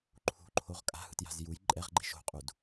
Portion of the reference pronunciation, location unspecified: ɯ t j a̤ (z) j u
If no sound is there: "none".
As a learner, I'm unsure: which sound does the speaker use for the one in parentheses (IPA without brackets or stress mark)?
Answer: z